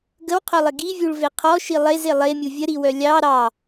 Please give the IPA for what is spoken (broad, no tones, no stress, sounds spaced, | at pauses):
ɡ ə w qʰ œ lˠ ɪ ɡ i vʲ u ɭ v e qʰ ɔ ʃ i lˠ e z e lˠ e mʲ u vʲ ə ɾ i w œ lʲ ɑ ɾ ɑ